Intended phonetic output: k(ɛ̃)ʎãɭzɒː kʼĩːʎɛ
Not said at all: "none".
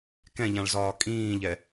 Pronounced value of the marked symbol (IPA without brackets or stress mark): ɛ̃